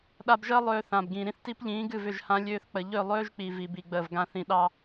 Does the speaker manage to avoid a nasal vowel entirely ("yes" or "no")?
no